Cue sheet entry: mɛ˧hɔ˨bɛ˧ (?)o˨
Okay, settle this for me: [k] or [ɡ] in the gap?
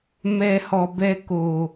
k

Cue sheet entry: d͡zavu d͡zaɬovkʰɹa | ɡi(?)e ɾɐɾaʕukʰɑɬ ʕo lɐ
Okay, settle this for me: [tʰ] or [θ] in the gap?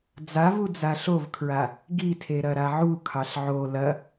tʰ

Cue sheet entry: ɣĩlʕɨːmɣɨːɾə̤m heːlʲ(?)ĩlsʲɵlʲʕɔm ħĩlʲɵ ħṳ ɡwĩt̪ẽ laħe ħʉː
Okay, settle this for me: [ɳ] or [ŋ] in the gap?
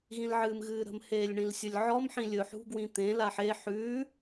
ɳ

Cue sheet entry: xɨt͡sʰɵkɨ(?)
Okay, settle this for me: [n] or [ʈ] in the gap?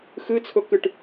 ʈ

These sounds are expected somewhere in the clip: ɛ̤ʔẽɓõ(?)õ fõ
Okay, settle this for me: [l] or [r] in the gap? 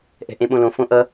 l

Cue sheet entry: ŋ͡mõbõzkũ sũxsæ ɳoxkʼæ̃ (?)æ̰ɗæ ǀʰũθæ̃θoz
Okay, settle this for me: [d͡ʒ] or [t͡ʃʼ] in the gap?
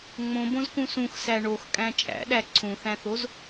t͡ʃʼ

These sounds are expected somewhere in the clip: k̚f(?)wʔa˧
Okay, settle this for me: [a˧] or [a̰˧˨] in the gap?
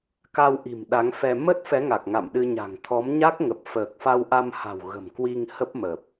a˧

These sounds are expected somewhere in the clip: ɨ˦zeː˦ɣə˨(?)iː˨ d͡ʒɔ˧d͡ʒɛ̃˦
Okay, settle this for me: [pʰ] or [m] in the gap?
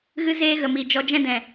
m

